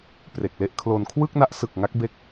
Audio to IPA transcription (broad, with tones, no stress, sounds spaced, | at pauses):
p r e˨˩ k̚ l e˦˥ ʔ kʰ l o˧ n kʰ w ɯ˥˩ k̚ n a˦˥ ʔ s ɯ˨˩ k̚ ŋ a˦˥ k̚ b e˦˥ k̚